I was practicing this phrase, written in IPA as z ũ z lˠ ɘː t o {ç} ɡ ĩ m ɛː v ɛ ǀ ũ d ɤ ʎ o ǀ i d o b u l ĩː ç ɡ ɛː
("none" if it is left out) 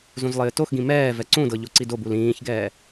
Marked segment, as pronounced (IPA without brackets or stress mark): x